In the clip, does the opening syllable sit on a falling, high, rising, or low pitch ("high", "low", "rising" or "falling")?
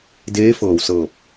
rising